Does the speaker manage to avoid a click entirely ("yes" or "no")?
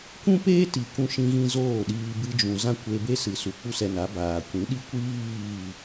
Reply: yes